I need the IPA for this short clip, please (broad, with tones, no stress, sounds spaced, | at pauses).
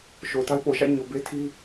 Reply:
ʃ o˨ ʊ̯ t a˦ ɪ̯ p o˨ ʃ ä̰˦˨ ɲ o˨ b e˦ tʰ i˦